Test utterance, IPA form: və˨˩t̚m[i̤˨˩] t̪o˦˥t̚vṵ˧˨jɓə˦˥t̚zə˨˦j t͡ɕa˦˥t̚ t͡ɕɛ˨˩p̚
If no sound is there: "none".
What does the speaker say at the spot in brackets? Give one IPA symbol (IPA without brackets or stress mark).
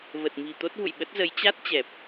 i̤˨˩